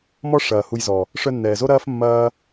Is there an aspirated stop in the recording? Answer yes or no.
no